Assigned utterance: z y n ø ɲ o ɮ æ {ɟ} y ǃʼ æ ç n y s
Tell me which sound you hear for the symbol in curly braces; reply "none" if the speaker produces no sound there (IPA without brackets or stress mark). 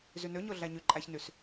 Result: ɲ